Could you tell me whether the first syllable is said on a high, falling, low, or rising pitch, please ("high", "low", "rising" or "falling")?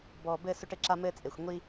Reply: low